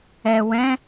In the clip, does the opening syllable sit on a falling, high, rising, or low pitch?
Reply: low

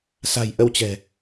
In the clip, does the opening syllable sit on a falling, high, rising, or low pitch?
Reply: low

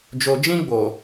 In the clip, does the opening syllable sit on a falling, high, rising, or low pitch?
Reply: low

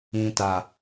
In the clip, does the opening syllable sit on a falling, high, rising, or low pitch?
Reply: low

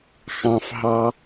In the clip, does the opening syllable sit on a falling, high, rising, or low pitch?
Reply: low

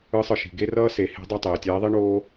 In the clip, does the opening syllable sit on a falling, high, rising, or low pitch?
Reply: rising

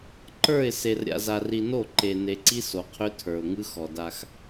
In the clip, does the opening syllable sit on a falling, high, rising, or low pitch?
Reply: falling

